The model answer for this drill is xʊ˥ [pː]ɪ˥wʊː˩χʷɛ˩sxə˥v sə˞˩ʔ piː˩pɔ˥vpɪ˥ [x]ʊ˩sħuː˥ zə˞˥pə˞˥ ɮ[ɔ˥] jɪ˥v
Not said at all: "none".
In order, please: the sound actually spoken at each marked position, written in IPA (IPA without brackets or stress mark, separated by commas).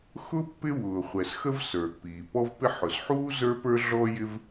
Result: pː, ħ, ɔ˥